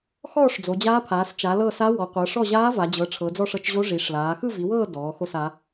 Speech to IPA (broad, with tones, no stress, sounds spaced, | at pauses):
x ɔː˦˨ ʂ d͡z o˩˧ d͡ʑ aː˧˥ pʰ aː˩˧ s t͡ʃ a˩˧ l ɤ˦˨ s a˧˥ w ɔ˩˧ qʷ ɤ˩˧ ʂ ɔ˦˨ ʑ aː˧˥ v a˩˧ d͡ʑ ɤ˩˧ ʈ͡ʂʰ ɤ˩˧ d͡z ɔ˦˨ ʂ ɤ˦˨ t͡ʃ ʑ o˧˥ ʐ i˩˧ ʂ l aː˩˧ x ɯ˦˨ v i˩˧ w ɤː˦˨ d ɔː˩˧ x o˦˨ s a˩˧